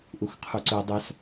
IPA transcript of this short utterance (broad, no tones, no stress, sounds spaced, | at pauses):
ʔ u x qʰ u ǀ ɵ ʊ̯ dˤ œ s